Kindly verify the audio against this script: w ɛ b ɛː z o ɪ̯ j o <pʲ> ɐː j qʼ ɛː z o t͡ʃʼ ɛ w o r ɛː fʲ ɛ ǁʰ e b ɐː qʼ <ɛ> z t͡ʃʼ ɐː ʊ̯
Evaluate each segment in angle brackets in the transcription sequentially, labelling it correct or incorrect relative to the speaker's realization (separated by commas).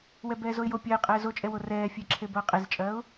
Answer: correct, incorrect